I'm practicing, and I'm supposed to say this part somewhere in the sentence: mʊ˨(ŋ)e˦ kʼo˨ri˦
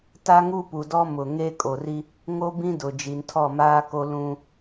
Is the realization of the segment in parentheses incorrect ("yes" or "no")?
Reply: no